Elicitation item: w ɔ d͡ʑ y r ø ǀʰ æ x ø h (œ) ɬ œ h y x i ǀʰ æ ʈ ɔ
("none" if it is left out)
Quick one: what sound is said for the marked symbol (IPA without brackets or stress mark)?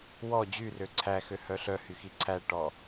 œ